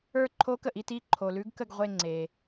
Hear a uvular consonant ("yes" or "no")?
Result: yes